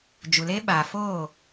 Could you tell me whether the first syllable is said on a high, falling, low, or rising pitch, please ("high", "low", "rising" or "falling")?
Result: low